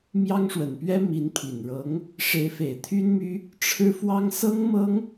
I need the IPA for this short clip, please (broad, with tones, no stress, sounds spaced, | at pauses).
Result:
m j ɑ˥ ŋ ʂ w ə˨˩ n p ɥ ɛ˥ m i˧˥ n pʰ i˨˩ n ɻ ɤ˧˥ ŋ | ʂ e˧˥ ɪ̯ f e˨˩ ɪ̯ t̪ʰ y˥ n m y˥ | ʈ͡ʂʰ ɻ̩˥ f w ɑ˥ ŋ s ɤ˥ ŋ m ɤ˥ ŋ